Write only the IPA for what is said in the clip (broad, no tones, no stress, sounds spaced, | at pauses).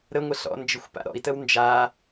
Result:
ɾ ə ŋʷ ə ɬ ɔ̰ n d͡ʒ ɪ xʷ p a̰ ɾ ɔ̰ i̯ t ə w n d͡ʒ a